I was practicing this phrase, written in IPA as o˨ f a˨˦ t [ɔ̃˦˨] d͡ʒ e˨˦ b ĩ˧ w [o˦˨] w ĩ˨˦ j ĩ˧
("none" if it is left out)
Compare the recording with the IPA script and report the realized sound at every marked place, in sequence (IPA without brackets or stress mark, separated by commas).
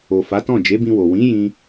ɔ̃˦˨, o˨